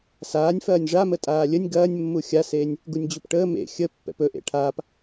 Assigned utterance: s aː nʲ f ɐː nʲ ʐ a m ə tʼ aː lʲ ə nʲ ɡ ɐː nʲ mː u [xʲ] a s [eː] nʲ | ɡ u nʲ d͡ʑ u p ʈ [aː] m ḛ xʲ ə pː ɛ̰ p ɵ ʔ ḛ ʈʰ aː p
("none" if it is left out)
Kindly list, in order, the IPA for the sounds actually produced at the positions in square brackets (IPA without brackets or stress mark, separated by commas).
xʲ, eː, əː